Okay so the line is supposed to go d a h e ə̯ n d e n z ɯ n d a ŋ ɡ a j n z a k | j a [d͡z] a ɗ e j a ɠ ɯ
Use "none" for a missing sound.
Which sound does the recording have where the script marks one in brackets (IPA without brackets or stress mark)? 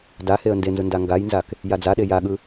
d͡z